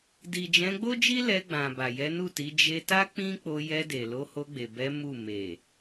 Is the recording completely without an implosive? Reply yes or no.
yes